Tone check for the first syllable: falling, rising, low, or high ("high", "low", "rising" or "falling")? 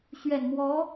low